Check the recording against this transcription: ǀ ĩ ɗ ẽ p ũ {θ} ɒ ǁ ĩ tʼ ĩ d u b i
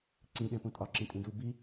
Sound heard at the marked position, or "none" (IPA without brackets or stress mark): tʼ